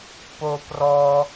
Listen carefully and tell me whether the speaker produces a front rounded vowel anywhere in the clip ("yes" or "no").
no